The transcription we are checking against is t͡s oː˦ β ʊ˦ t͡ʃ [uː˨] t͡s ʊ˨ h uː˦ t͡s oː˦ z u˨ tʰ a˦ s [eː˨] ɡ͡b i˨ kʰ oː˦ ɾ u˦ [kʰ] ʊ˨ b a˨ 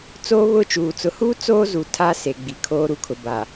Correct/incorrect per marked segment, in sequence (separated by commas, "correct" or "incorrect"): correct, incorrect, correct